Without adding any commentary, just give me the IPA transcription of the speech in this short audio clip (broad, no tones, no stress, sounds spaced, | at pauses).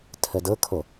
tʰ ə d ɤ kʰ o